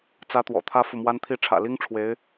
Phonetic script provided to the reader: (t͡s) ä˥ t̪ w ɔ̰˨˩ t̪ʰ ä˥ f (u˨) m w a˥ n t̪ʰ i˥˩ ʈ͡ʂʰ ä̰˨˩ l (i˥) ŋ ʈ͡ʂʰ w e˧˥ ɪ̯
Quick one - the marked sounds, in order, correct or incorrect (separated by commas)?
correct, correct, correct